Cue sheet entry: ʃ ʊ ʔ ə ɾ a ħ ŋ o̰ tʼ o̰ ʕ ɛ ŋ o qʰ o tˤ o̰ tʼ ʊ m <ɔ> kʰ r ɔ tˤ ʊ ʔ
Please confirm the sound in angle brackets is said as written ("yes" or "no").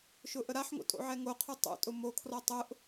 no